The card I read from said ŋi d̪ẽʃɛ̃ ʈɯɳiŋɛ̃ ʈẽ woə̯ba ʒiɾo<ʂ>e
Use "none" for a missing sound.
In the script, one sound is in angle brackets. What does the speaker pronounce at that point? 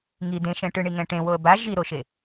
ʃ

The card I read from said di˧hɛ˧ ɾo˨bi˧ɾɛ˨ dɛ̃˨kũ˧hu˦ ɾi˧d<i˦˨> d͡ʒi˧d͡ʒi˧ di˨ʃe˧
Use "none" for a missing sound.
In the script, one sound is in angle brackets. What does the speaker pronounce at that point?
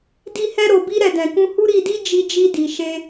i˦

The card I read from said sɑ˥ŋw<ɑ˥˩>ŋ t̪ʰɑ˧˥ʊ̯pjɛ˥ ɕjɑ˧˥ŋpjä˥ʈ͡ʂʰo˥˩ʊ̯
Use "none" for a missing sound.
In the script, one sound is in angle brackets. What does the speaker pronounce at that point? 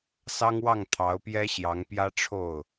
ɑ˥˩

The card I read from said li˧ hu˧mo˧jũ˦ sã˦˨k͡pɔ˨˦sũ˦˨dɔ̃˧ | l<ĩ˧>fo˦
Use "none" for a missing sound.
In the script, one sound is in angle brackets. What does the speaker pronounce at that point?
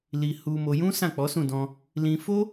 ĩ˧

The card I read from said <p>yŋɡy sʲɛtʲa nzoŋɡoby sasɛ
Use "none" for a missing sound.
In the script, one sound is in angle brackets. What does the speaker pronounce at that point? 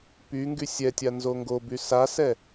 p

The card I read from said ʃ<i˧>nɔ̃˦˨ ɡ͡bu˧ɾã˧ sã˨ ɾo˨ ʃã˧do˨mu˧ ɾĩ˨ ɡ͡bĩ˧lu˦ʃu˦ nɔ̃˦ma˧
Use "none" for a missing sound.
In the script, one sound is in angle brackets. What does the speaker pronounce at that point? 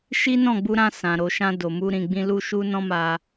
i˦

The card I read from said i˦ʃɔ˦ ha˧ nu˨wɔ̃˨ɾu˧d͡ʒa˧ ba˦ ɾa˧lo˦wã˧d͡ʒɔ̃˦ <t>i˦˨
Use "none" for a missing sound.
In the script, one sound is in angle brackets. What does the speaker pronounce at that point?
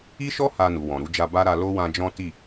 t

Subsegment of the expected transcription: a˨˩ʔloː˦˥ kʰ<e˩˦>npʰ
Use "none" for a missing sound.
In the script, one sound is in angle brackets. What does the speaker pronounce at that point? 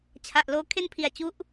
e˥˩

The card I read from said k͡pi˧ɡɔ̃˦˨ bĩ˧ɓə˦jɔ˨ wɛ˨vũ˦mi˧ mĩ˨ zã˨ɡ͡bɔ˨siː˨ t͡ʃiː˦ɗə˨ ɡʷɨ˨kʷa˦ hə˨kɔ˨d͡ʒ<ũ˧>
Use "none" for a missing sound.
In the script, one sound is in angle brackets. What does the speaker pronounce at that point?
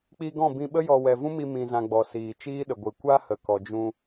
ũ˧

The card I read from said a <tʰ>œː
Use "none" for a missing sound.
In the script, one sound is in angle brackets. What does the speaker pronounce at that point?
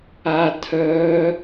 tʰ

